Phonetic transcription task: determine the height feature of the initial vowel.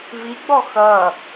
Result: high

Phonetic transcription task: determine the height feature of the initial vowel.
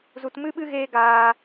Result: high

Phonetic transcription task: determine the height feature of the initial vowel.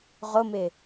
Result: high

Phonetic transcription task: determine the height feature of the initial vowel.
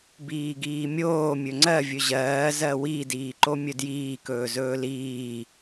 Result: high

